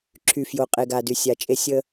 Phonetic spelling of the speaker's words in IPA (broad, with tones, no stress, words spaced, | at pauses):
ǁʰy˨fjo˨ qʼe˨ɡa˨dy˨ sʲa˨t͡ʃʼe˦ sʲə˦